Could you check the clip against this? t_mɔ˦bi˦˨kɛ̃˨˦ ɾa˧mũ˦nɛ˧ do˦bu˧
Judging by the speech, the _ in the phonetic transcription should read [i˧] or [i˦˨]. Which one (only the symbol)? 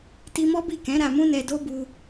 i˧